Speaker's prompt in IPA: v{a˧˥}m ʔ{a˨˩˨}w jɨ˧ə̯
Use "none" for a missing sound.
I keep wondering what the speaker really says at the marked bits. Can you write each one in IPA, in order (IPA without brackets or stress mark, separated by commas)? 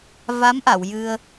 a˧˥, a˨˩˨